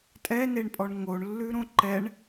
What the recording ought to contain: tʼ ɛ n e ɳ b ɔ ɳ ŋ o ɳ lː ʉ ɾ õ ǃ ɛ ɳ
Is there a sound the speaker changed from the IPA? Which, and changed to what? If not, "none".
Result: b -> pʼ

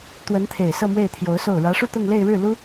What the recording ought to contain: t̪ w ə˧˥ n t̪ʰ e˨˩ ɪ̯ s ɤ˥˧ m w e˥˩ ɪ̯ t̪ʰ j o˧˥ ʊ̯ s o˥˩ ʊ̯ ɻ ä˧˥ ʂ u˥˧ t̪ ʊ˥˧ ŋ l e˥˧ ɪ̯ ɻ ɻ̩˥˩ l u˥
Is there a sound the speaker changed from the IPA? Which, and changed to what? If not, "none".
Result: none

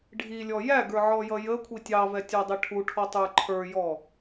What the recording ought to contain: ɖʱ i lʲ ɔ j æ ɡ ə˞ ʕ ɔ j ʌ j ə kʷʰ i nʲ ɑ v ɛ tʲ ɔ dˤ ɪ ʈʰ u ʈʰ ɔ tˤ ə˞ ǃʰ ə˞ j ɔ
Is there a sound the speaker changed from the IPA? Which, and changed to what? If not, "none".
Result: nʲ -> tʲ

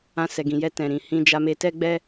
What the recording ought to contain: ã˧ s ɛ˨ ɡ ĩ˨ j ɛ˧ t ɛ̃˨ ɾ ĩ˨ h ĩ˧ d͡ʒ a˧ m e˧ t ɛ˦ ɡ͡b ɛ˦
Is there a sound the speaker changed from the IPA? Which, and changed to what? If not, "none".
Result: none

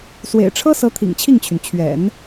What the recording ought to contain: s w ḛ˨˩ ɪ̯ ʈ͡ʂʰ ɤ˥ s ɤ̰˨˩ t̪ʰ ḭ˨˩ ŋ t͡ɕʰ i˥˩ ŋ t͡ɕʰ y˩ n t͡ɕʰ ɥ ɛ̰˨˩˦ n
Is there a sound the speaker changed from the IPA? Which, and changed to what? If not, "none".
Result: ɤ̰˨˩ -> ɤ˧˥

